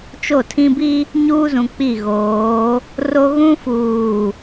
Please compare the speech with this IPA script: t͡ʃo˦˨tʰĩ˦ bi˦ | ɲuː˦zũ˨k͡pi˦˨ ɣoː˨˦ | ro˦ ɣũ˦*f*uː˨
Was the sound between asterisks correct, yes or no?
yes